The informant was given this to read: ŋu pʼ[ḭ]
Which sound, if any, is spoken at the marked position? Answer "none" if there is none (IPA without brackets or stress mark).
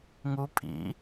ḭ